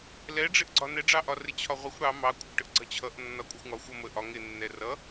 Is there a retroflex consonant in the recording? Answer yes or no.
yes